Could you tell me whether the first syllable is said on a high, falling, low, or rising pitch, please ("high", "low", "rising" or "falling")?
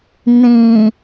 low